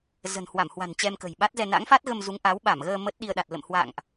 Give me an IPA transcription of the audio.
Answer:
z ə̤˨˩ n h w a˧˩ m h w a̤˨˩ n t͡ɕ ɛ˧ m k ə̤˨˩ j ɓ a˦˥ t̚ z ɛ˧ n a̰˧˥ ŋ f a˦˥ t̚ ɣ ə˧ m z u˨˦ ŋ ʔ a˨˦ w ɓ a˧˩ m ɣ əː˧ m əː˦˥ t̚ ɗ i˧ ə̯ ɗ a˨˩ t̚ l ə̰˧˨ m h w a̰˧˨ ŋ ʔ

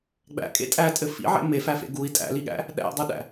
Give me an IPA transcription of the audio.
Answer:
ɡ͡b æ̰ kʼ ḛ tʼ æ tʼ ɘ f ḭ ʕ ḛ m e f æ f ḛ ɡ u i̯ tʼ æ̰ l i ɠ æ̰ | ɗ æ̰ dˤ u ɗ æ̰

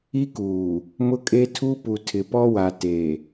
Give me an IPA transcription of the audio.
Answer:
i˦ k uː˨ | m ʊ˦ kʼ e˦ tʰ u˦ p u˨ tʰ ɪ˨ p ɔ˦ w a˨ t e˨

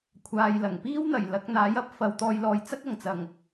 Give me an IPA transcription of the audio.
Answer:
kʷʰ aː˨ j l ɐ˨˩ ŋ p iː˥ w n̪ ɐ˨˩ j l ɐ˨˥ k̚ n̪ aː˨˥ j ɐ˨ p̚ f ɐ˧ w t̪ ɔː˧ j l ɔː˨˧ j t͡s ɐ˥ k̚ ɐ˨˩ ŋ t͡s ɐ˨˩ ŋ

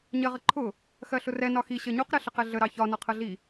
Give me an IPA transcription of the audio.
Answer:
ɲ ɜ ʁ ə ǃʰ ʊ | x ɜ ɬ ʊ r ɛ n ɒ x i ɕ ɜ ɲ u q ɾ ɛ ɬ ə q ɛ ɮ ə ɾ ɑ ç ɒ n ɒ qʰ ɜ ɮ i

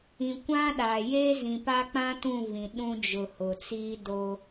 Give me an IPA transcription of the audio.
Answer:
ĩ˨ kʷ ã˦ ɗ aː˨ j eː˦ z ĩ˨ p a˦ k͡p ã˦ t ũ˦˨ v ĩ˨ ɗ ũ˦ d͡ʒ ʊ˨ h ʊ˨ t͡s iː˦ d o˦

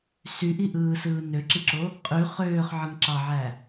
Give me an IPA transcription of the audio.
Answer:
s y ʔ i ʔ ɯː s ɯː n ø ǁ i ǁ o | qʼ y χ øː χ ʕ ɯ ŋ ǁ ɑ ʕ æ

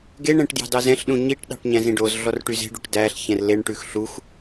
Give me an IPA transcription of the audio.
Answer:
ɡ e ɳ ɛ̃ ʈ d j ɑ̤ d ɑ z ɛ̃ ɬ ɗ ũ ɲ i ʈ ɗ ɑ̤ ʈ ɲ æ̃ z ĩ ɖ o z ɮ ɔ r ʈ y z e̤ ɖ u ʈ d æ ɬ ç ɛ̃ r l e ɳ ʈ ʉ x ɬ u x

